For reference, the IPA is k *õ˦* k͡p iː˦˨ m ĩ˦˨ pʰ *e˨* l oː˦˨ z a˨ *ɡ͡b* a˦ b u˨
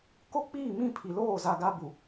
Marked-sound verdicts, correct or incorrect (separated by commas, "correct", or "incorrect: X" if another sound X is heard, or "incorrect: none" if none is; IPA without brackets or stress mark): incorrect: o˦, incorrect: i˨, incorrect: ɡ